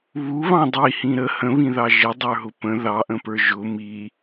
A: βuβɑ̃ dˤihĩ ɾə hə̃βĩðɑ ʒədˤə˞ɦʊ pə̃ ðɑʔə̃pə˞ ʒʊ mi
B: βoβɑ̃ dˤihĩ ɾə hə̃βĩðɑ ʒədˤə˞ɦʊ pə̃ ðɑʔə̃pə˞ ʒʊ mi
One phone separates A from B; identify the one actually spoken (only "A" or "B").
A